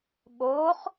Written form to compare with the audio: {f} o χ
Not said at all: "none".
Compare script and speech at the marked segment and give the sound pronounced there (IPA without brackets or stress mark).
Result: ɓ